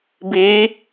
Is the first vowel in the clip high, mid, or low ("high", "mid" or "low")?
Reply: high